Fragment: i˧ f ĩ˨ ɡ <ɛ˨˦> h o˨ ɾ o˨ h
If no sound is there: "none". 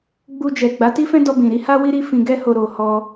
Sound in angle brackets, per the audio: ɛ˧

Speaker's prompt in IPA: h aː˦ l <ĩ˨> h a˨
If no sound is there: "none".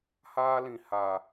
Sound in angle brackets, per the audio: ĩ˨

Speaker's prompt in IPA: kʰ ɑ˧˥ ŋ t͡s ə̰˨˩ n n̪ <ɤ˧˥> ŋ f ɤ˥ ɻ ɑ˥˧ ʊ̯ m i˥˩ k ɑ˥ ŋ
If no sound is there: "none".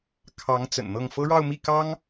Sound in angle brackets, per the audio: ɤ˥˩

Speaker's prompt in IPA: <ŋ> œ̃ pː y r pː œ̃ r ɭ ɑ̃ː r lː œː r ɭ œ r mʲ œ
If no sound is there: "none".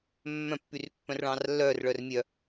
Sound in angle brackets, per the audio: mː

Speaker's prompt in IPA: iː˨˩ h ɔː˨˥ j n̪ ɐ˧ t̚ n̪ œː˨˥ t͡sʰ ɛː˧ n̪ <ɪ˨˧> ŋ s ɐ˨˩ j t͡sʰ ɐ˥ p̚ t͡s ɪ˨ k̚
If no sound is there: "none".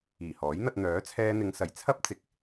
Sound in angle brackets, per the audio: ɪ˨˧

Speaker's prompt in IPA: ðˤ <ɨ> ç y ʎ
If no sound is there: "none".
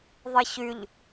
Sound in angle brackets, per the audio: ɨ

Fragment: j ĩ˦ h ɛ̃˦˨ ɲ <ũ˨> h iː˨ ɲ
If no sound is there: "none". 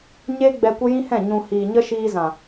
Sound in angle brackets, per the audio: ũ˨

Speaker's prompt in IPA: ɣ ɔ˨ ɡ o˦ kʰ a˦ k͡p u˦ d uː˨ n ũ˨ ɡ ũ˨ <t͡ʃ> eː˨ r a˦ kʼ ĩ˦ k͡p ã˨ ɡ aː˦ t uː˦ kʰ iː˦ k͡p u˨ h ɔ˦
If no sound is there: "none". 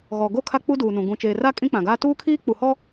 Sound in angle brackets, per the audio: t͡ʃ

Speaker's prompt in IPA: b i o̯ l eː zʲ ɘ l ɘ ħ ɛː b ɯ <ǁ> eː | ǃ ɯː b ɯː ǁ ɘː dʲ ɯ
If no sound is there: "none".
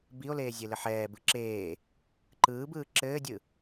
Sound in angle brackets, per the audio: ǁ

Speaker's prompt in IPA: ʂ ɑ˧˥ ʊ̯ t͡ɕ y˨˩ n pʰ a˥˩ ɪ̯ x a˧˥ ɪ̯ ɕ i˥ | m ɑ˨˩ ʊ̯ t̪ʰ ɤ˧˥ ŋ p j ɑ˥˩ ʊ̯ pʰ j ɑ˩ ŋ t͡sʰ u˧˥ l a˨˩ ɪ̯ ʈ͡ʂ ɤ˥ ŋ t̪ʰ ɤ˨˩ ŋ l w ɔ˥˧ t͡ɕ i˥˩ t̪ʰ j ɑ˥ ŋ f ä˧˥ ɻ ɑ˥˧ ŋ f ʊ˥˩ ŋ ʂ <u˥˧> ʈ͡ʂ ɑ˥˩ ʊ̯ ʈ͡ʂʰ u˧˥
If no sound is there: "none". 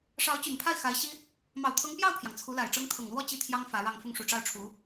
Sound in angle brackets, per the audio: u˨˩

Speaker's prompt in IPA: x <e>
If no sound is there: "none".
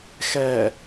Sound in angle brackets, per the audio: ɛ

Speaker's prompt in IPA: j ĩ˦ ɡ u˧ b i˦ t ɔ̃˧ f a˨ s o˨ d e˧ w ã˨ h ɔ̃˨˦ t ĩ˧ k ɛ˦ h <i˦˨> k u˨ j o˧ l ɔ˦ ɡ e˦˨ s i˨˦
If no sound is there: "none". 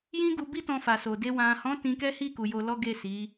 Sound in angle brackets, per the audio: i˦˨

